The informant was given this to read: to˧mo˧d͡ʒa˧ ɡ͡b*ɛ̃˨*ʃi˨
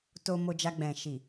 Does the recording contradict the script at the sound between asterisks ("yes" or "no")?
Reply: no